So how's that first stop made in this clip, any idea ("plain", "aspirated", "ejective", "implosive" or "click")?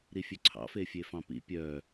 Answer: click